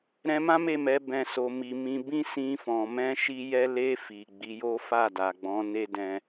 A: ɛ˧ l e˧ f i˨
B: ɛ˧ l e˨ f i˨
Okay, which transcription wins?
A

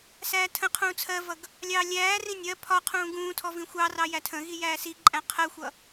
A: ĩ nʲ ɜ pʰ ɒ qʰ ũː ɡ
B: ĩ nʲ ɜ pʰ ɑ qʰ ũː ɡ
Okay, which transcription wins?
A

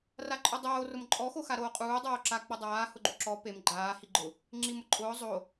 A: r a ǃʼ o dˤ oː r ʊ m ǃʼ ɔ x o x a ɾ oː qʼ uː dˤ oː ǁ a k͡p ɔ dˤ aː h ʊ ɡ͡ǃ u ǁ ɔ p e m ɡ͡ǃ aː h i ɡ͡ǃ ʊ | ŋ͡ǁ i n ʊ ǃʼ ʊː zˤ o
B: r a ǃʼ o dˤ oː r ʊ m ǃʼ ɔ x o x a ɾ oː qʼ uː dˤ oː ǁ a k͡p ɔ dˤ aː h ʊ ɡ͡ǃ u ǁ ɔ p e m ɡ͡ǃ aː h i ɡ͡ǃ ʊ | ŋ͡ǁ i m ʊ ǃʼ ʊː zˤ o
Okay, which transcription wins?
B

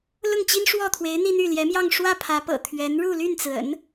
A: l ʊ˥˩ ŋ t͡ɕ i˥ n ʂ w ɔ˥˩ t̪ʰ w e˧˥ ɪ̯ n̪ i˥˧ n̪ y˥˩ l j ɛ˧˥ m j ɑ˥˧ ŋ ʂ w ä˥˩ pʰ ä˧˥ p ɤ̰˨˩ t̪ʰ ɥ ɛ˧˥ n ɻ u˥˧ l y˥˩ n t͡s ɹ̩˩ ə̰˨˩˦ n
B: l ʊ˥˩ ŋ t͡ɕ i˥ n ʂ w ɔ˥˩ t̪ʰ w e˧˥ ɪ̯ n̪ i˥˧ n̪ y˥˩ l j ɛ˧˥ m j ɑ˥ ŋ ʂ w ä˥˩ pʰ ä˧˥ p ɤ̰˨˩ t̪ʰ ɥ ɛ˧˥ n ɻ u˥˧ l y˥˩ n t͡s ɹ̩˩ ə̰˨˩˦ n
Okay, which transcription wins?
A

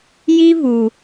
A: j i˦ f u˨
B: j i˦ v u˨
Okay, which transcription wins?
B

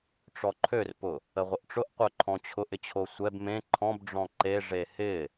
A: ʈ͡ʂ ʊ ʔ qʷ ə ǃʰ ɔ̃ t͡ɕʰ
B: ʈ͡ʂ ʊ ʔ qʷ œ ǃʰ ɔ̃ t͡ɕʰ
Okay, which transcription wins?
B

